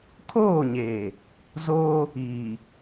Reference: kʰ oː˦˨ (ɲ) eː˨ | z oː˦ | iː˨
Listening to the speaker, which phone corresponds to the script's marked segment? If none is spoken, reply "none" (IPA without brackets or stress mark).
ɲ